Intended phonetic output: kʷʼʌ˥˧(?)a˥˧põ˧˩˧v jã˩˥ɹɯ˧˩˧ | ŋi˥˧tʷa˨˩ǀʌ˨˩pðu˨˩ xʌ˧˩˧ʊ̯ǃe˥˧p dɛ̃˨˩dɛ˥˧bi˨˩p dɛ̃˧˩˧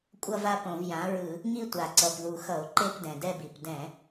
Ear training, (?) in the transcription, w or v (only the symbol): v